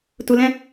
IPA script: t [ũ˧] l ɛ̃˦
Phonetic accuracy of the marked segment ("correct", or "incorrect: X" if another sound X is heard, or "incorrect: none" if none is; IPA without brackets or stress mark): incorrect: u˧